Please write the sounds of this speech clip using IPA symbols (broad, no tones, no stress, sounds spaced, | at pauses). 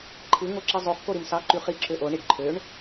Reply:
ǃʰ ɯ ŋ o ǁ i zˤ o χ k o ɾ i m s ɑ ǃ y χ i ǁ ø ʔ o ɳ i ɖ ǃʰ ø ɳ